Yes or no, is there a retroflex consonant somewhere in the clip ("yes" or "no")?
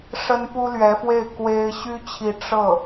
yes